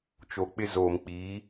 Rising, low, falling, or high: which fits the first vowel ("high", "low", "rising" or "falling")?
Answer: low